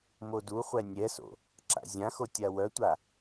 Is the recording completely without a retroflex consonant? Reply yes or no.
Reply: yes